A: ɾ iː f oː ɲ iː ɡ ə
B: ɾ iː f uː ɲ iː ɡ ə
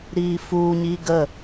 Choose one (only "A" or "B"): B